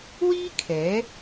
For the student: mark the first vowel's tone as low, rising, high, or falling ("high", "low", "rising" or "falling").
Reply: high